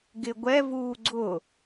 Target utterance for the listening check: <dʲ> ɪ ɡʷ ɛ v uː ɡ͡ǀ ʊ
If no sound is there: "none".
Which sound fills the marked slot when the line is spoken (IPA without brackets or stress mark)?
ɡ